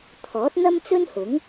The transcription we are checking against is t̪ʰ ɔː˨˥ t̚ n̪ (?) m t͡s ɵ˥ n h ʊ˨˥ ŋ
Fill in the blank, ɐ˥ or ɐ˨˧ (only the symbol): ɐ˥